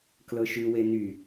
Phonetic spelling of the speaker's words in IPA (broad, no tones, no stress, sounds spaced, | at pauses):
k l ɤ ʃ ʉ w e n y